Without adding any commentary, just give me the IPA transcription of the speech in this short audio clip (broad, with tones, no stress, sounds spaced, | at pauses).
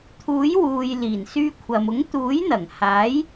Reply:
t̪ʰ uː˨˥ j w uː˨ j l iː˨˩ n s yː˧ kʷʰ ɐ˨ m ʊ˨˥ ŋ t̪ uː˨˥ j n̪ ɐ˨˩ ŋ h aː˨˥ j